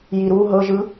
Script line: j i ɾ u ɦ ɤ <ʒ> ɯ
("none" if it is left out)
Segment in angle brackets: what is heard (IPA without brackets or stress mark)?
ʒ